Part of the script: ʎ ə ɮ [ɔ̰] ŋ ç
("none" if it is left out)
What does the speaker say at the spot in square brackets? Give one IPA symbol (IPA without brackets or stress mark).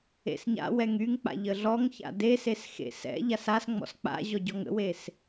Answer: ɔ